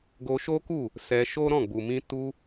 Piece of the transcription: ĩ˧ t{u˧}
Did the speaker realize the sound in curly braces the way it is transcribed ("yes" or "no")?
yes